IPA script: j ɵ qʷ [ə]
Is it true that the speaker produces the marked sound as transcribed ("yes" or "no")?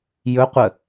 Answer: yes